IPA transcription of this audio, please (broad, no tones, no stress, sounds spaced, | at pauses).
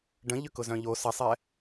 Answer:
ɖ ə̃ ʎ ʏ k ʊ z œ̃ ʎ o s ɐ sˤ ɛ